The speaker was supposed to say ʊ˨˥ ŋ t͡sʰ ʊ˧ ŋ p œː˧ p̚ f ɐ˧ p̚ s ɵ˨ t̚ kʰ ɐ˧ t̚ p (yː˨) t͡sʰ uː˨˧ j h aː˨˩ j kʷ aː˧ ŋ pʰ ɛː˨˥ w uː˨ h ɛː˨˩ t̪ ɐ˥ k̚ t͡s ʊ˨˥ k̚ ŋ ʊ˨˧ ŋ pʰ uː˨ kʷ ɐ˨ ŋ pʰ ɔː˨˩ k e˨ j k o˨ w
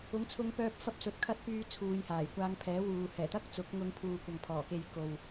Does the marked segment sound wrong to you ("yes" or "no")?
yes